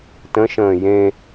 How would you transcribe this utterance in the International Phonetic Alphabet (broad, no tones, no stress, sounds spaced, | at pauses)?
t ə̃ ʃ ə̃ː j ẽ